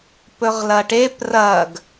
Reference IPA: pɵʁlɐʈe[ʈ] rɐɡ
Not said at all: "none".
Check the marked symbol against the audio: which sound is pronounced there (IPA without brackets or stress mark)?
p